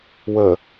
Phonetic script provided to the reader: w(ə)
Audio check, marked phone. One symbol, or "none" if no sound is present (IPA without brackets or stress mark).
ə